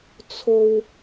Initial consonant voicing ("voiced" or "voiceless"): voiceless